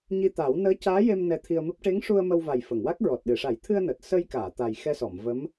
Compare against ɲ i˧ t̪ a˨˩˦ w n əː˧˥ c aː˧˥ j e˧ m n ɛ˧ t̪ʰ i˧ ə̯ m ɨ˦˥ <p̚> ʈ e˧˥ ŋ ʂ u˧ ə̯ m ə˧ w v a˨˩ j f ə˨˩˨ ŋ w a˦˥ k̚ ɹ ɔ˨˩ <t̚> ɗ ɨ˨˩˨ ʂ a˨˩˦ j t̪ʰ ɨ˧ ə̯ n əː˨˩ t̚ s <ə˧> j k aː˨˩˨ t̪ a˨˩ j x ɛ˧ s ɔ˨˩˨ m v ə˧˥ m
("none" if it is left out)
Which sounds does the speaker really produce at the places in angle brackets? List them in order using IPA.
p̚, t̚, ə˧

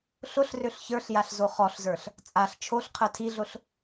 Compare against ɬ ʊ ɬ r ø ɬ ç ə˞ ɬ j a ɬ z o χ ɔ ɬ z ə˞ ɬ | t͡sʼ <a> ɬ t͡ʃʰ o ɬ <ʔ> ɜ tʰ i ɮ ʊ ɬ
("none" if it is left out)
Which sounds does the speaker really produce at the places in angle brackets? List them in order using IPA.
a, qʰ

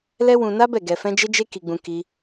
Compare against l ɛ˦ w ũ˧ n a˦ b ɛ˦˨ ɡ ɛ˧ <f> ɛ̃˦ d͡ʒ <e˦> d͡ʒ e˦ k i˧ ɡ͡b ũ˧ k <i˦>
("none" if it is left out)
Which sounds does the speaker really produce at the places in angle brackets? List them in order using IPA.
f, e˦, i˦

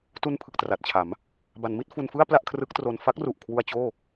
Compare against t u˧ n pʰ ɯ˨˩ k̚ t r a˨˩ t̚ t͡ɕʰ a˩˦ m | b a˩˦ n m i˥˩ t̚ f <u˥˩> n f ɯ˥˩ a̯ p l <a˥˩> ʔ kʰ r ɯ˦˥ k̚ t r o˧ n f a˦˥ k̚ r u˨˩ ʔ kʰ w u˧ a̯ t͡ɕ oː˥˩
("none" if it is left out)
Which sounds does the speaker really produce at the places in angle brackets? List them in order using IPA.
u˧, a˥˩

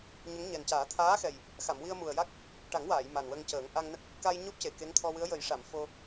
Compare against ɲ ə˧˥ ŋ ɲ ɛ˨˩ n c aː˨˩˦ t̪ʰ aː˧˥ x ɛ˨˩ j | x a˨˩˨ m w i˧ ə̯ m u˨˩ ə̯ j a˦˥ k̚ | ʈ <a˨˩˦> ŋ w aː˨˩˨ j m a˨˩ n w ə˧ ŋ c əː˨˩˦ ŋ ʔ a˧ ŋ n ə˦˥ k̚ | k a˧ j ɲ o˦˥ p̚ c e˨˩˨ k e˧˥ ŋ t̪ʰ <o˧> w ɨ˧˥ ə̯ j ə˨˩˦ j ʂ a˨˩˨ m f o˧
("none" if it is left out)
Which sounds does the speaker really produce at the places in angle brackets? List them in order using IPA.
a˨˩˦, ɔ˧

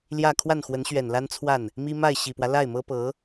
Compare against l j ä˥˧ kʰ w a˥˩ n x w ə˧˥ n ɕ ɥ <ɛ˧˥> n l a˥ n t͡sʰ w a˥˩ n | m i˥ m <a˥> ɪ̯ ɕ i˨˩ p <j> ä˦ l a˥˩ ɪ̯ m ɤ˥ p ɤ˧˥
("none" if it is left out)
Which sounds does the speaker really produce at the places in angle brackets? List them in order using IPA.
ɛ˨˩, a˥˩, w

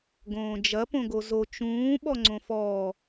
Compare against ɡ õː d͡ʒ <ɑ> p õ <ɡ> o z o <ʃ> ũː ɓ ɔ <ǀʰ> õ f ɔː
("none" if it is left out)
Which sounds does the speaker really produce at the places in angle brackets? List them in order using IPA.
ɐ, ɡ, t͡ʃ, ŋ͡ǀ

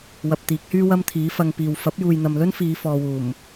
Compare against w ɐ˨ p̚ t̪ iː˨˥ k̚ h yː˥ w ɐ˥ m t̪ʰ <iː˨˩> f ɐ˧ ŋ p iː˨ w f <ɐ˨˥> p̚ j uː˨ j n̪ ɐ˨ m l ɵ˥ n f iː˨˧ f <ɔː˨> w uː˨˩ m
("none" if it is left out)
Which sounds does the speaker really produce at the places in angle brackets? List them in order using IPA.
iː˨˥, ɐ˨˥, ɔː˨

